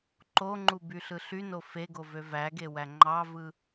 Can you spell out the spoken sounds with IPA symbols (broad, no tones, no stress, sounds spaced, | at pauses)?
ǃ o ŋ͡ǃ u b y ɬ ɯ ɬ y n o f e ɡ o v ø v æ ɡ e w æ ŋ͡ǃ ɑ v ɯ